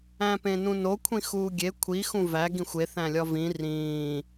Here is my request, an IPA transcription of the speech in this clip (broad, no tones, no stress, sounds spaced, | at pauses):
æ̃ p ẽ n ũ n o kʷʰ ĩ x uː ɡʲ e kʷʰ i x ũ v æ ɡ ĩ xʷ e θ æ̃ lʲ ɒ v ĩ r ĩː